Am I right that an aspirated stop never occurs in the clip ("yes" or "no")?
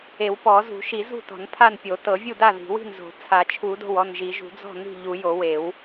no